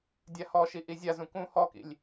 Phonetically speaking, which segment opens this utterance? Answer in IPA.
dʲ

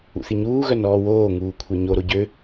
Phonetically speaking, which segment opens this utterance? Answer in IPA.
ṵ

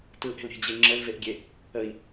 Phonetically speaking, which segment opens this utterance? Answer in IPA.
t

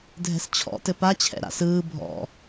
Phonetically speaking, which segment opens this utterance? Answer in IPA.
dʱ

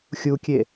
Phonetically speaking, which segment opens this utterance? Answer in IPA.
xʲ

